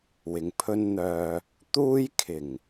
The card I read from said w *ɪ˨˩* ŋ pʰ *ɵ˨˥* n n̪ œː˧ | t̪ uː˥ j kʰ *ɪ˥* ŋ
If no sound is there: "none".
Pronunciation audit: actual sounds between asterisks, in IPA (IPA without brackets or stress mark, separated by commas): ɪ˨, ɵ˥, ɪ˨˩